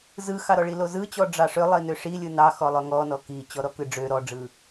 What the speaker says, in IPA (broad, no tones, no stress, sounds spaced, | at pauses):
z ɯ x ɑ ɾ ɔ ɭ i l o z ɯ t͡ɕ ɔ ɖ͡ʐ ɑ ʂ ø lˠ i n ø ʂ i lʲ ɯ n ɑ x ɔ lˠ ø ŋ ɔ n ɔ k i t͡ɕ ɔ ɾ ɔ k ɯ ɖ͡ʐ ø ɾ ɔ ɖ͡ʐ ɯ